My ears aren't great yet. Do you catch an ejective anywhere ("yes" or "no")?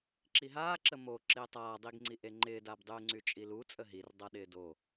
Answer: yes